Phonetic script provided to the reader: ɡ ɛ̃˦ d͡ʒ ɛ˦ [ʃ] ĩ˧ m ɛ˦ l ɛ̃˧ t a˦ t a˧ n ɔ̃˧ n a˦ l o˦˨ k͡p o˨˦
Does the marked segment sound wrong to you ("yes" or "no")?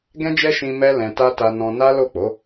no